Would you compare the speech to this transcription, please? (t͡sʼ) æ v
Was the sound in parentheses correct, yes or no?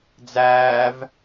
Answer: no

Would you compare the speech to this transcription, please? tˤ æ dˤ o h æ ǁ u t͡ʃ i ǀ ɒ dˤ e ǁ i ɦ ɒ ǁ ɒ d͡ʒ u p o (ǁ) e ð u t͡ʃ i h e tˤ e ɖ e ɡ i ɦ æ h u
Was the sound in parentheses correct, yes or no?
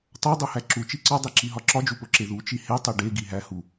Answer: yes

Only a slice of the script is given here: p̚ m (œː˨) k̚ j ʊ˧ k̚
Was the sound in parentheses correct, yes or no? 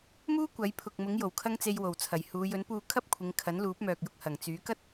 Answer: yes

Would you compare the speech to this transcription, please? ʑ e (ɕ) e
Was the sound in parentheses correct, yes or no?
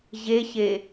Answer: yes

